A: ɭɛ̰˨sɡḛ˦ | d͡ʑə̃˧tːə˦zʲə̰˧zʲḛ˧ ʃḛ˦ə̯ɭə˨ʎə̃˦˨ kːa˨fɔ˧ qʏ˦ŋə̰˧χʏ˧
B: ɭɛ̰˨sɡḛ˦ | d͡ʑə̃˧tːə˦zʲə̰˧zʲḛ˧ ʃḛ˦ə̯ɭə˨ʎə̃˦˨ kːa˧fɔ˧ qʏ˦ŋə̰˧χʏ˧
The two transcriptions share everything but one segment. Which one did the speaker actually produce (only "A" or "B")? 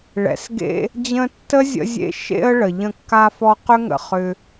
B